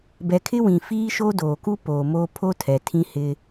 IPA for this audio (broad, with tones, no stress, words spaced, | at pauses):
bɛ˨kʰɪ˦wĩ˨ fiː˦ʃo˦doː˨ku˦ poː˨moː˦ pʰo˦ tʰɛ˨tʰĩ˦hɪ˦